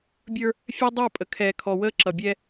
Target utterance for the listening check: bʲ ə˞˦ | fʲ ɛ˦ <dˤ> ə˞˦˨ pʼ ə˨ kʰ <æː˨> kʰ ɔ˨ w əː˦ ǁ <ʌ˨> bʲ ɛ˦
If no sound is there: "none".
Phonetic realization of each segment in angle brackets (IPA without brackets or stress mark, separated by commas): dˤ, ɛː˨, ʌ˨